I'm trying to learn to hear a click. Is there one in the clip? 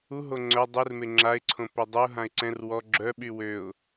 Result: yes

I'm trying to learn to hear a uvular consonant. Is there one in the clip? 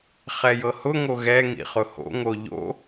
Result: yes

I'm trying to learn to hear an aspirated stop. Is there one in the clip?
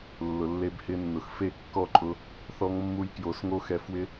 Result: no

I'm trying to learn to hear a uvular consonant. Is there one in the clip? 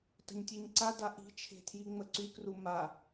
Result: no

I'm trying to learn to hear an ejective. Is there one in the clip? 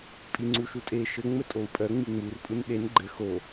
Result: yes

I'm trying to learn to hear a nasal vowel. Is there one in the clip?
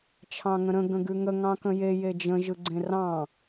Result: yes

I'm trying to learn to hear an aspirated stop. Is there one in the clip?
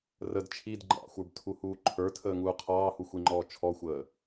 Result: yes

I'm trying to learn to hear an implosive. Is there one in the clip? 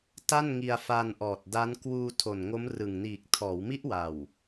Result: no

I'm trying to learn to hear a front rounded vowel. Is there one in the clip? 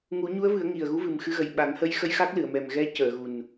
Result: no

